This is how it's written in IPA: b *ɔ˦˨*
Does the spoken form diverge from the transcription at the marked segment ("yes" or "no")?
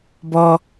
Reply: yes